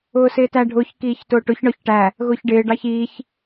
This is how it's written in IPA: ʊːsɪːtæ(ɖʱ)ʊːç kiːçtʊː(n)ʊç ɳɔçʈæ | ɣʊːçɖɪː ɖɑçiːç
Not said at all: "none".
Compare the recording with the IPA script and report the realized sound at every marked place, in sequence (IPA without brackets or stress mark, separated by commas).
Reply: ɖʱ, ʈ